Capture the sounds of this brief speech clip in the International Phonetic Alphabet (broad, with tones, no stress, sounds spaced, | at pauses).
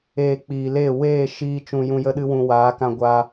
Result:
eː˧ k͡p iː˨ l e˦˨ w eː˦˨ ʃ iː˧ t͡ʃ ũ˧ j ũ˧ j ə˦ ɗ ɨ˦ w ũ˧ w aː˨˦ k ã˧ ɡʷ aː˧